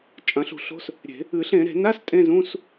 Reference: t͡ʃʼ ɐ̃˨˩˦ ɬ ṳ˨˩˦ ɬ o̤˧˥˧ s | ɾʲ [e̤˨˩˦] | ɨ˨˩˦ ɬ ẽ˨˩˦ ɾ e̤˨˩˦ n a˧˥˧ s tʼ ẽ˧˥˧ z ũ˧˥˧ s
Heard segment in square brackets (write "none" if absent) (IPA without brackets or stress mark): e̤˨˩˦